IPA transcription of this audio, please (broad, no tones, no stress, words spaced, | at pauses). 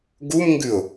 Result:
ɡumŋɡʉʊ̯